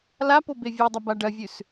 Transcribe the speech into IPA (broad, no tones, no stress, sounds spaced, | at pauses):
l a p o b e vʲ e dˤ ɐ b a ɖ ɐ vʲ ʉ s